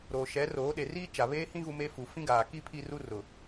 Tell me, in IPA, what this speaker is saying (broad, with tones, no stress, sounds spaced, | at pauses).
ɾ oː˨ ʃ ɛ˨˦ r oː˨˦ ɗ e˨ r iː˦ t͡ʃ a˨ β eː˦ h ĩ˦ ɣ u˦ m e˦ f u˨ f ĩ˦ ɡ aː˨ k i˦ pʰ i˦ r u˦ r ʊ˨